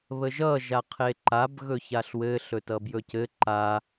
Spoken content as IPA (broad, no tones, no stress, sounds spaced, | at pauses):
β ə ʒ ʌ ʒ a qʰ e ǃ a b ɣ ɵ ç a ɬ w ɘ ɬ ɵ t ʌ b j ɵ c ɘ ǃ a